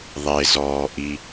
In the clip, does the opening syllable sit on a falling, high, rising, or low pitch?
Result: low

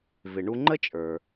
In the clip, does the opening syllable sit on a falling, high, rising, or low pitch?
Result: low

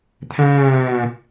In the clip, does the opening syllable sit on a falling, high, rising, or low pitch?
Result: falling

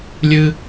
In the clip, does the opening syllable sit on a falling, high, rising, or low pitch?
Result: high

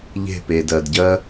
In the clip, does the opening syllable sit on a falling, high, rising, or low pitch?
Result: falling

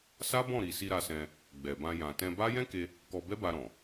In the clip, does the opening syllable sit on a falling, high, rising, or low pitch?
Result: high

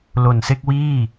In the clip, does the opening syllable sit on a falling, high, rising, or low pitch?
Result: low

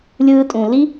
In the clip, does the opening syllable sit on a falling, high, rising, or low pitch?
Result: high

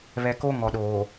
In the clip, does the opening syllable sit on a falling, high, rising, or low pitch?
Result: low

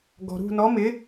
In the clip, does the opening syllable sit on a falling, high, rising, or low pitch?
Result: low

